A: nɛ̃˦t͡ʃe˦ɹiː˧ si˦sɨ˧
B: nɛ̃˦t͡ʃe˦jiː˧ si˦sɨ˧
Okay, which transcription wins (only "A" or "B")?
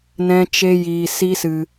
B